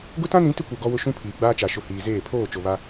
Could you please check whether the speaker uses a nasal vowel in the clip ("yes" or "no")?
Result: yes